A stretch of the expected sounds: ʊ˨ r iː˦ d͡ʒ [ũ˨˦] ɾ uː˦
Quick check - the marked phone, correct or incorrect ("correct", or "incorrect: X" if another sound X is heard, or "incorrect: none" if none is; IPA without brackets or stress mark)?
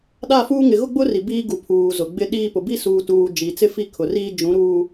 correct